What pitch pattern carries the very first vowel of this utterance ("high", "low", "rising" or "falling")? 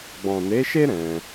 low